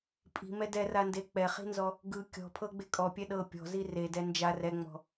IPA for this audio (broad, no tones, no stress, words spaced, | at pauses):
pʼi̤mɛ dɛrande k͡pɛχi̤nzɔ | ɡɯ kʲɔ̤pʰɤɡ͡be kʼɔpʲɛ ɗɤ pʲɔ̤zi redɛ nd͡ʒar ɛŋ͡mɔ̤